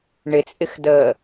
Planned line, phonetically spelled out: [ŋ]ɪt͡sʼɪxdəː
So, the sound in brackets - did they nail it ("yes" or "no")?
no